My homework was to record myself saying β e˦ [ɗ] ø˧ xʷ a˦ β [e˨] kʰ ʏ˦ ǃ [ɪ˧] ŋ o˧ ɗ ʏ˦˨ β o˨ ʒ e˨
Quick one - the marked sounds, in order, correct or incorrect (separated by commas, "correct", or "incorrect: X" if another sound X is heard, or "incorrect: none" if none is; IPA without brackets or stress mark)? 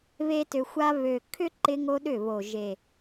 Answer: incorrect: t, incorrect: ø˨, correct